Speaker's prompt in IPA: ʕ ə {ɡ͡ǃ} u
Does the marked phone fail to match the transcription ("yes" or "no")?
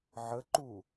yes